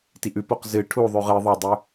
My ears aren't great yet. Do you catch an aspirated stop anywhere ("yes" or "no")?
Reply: yes